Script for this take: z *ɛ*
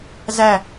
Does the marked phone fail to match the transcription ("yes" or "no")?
yes